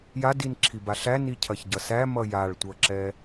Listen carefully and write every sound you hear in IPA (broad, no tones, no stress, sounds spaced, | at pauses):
j a d i n ǁʰ i b a ɬ æ n i cʰ ɐ ç ɟ ʌ s æ m ʌ j a ɭ tʷ ʌ ǁ ɛ